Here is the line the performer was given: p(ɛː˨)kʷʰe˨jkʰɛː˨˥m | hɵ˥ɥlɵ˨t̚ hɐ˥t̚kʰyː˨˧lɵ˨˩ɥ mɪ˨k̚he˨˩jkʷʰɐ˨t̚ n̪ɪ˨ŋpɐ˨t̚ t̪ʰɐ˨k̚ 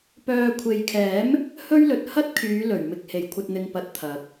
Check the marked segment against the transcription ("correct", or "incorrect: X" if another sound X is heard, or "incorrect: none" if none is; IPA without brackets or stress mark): incorrect: œː˨